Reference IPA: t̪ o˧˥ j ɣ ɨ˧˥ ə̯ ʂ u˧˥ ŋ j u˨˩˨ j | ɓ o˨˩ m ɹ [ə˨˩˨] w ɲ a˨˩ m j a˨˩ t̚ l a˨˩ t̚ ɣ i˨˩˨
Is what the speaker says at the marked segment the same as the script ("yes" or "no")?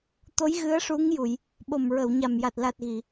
yes